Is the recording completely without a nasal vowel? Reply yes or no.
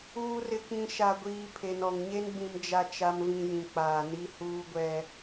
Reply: no